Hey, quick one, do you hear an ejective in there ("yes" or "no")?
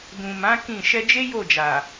no